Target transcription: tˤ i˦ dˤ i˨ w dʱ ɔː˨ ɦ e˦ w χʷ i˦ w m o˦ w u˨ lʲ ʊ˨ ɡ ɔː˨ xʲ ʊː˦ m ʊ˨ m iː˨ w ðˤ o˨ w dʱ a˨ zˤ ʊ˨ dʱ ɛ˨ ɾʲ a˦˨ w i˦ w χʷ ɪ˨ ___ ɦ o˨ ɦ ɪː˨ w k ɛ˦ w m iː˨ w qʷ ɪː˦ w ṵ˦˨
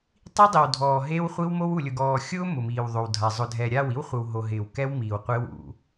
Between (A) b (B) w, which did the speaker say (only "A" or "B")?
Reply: B